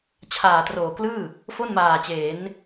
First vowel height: low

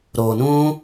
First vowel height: mid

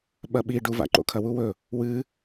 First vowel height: low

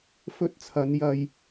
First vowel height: mid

